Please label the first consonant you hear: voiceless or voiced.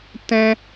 voiceless